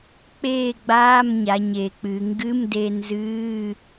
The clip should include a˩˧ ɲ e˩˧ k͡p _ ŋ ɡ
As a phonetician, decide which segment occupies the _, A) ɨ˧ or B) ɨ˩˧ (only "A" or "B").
B